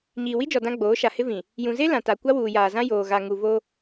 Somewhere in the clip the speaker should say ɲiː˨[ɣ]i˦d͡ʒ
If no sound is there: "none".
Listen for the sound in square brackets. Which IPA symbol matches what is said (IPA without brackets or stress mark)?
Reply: w